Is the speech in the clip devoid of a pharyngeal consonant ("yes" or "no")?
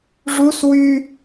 yes